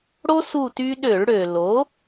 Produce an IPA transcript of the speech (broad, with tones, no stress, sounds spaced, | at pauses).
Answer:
ɽ o˥ s u˥˧ t y˥ ɗ ø˧˩˧ ɭ ɽ ø˩ l o˩˥